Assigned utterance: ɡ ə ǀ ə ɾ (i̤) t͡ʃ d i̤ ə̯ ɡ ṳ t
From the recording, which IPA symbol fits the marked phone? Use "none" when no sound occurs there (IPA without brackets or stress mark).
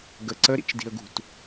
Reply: ḭ